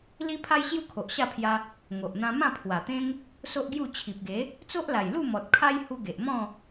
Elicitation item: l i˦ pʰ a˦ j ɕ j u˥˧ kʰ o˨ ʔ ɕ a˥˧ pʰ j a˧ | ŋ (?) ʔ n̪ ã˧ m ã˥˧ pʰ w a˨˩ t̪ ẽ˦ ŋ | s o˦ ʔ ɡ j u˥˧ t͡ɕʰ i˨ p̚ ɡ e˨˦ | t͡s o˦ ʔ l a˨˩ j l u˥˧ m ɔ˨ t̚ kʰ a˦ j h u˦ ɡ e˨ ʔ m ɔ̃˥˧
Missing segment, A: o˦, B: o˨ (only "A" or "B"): B